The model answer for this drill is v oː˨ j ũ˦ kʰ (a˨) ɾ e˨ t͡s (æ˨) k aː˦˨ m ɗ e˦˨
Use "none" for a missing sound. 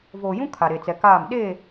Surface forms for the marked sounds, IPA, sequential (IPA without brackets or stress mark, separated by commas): a˨, ɛ˨